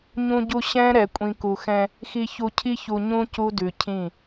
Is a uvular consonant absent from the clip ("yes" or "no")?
yes